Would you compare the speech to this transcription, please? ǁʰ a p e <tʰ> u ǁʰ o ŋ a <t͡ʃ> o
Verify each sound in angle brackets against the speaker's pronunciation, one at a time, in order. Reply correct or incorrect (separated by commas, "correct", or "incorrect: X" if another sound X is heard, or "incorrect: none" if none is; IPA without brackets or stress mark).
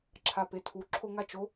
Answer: correct, correct